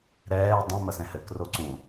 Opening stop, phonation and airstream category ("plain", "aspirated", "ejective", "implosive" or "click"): plain